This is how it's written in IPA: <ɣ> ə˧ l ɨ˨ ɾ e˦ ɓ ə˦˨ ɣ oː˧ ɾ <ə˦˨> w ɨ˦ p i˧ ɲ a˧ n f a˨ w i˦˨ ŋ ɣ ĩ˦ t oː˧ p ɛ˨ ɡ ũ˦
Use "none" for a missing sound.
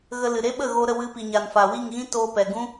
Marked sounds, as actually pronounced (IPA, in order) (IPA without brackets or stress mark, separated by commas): ɣ, ə˦˨